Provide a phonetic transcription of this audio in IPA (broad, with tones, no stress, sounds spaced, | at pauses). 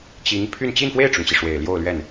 t͡ɕ i˧˥ ŋ pʰ y˥˧ n t͡ɕ i˥˧ n f w e˥˩ ɪ̯ ʈ͡ʂ ʊ˩ ŋ t͡ɕ i˩ ʂ w e˨˩ ɪ̯ l j o˥˧ ʊ̯ l ɥ ɛ˥˩ n